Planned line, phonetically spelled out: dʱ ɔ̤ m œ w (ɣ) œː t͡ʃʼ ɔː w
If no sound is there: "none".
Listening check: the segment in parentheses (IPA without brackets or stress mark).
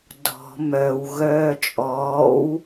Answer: ɣ